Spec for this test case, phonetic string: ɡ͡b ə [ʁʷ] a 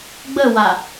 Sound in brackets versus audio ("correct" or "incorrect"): incorrect